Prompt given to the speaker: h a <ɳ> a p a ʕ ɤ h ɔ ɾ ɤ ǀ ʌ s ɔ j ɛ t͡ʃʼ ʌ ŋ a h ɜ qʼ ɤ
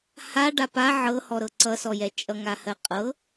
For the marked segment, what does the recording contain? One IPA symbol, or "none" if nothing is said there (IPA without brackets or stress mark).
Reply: ɖ